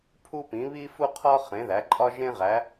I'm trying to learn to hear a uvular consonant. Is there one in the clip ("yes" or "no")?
yes